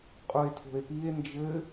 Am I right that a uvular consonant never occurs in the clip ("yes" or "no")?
no